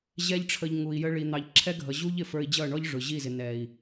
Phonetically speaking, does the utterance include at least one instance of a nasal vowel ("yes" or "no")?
no